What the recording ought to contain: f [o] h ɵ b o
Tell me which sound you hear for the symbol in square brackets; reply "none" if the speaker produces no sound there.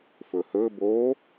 ɵ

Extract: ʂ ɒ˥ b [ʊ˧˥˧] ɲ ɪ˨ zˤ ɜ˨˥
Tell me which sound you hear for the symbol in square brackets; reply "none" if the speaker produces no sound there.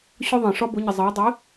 ʊ˨˥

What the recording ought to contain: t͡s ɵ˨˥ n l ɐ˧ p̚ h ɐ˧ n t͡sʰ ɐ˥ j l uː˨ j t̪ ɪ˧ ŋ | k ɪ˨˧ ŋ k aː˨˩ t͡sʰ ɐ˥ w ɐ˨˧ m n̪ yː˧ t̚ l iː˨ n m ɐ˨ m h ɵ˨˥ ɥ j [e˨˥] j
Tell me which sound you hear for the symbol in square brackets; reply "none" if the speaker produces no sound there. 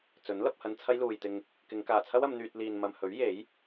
e˨˥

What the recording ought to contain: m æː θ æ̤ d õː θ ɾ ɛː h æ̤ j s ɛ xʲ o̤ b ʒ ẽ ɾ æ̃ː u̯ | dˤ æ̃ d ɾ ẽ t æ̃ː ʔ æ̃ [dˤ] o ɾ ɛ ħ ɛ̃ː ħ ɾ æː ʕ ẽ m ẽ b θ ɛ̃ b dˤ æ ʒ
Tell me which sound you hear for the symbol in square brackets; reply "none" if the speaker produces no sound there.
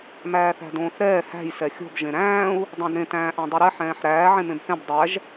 dˤ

